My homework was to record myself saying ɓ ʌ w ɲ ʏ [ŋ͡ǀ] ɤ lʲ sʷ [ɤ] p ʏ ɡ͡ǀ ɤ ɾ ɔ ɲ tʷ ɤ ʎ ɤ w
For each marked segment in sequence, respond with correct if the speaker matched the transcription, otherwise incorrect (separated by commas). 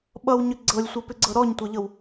incorrect, correct